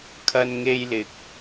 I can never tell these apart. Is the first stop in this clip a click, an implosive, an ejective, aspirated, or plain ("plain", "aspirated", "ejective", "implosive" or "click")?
aspirated